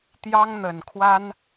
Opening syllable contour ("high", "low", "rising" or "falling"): high